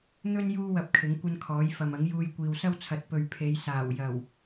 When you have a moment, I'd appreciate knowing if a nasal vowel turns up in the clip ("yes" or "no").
no